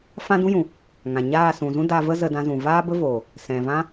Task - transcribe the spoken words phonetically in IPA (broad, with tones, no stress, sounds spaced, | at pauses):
f ã˦ d ũ˦ j ũ˨ | ŋ ã˨ ɲ aː˦˨ s ũ˨ z ũ˦ d a˧ v ə˦ z ə˧ d ã˧ z ũ˨ v aː˦ b ə˦ v oː˨ | s ɛ̃˨ v ã˦